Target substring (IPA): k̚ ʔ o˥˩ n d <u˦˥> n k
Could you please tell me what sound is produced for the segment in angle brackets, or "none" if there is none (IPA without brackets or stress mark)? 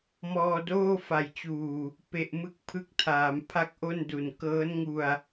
u˨˩